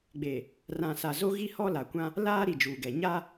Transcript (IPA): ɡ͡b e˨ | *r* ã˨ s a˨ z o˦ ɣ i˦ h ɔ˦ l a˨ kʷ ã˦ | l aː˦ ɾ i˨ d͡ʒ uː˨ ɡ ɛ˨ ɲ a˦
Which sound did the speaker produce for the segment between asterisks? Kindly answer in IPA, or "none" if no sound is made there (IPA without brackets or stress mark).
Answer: r